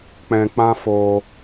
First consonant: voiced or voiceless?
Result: voiceless